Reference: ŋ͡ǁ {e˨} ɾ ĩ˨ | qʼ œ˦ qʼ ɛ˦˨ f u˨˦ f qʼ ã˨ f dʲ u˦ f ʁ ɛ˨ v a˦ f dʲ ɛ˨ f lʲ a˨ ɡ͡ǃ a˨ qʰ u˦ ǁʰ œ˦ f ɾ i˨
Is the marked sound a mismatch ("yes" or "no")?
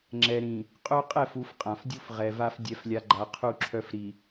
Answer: yes